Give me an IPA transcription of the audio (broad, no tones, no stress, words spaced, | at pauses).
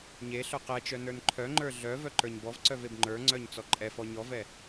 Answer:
ɲe ɬœqɛt͡ʃœ nə˞nǃʰœŋ͡ǃə˞ ɮœ vœǃə˞ɲbɔvǀœv ebŋ͡ǃə˞ŋ͡ǀœɲ t͡sɔǃʼɛfɔ ɲɔvɛ